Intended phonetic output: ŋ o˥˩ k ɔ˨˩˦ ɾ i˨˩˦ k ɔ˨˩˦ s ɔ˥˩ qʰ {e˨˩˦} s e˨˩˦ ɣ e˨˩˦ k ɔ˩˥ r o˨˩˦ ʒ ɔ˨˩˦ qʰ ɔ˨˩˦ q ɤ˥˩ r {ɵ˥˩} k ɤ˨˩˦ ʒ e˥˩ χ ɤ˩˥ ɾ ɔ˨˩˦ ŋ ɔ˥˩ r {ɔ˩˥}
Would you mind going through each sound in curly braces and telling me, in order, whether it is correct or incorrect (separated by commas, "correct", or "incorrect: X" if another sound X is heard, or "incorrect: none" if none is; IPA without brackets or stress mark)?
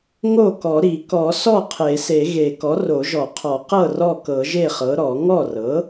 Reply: correct, incorrect: ɔ˥˩, incorrect: ɤ˩˥